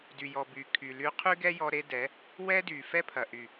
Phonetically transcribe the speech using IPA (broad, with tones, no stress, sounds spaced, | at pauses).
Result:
d y˨ j ɔ˨ b y˨ kʰ y˨ l y˧ qʰ y˦ ɡ ɛ˦ j ɔ˧ ɾ e˦ d ɛ˨˦ | w ɛ˦ d y˨ f ɛ˦ pʰ ɐ˨ ʔ y˨